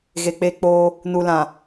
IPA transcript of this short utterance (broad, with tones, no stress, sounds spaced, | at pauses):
ɣ e˨ k͡p e˦ k͡p o˦ | n u˨ l ã˨